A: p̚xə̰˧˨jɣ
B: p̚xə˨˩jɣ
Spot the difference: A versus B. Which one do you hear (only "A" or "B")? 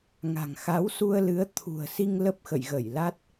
A